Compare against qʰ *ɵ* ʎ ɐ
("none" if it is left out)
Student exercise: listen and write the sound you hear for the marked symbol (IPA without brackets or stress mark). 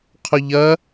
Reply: ɵ